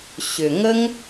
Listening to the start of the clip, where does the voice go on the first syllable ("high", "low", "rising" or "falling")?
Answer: low